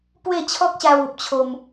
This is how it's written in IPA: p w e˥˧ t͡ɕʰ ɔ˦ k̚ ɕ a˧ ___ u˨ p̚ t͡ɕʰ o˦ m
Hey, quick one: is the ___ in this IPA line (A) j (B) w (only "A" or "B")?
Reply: B